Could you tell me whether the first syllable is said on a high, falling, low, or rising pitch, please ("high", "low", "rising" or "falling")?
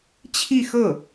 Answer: falling